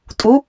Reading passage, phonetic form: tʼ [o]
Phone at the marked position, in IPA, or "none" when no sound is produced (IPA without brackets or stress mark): u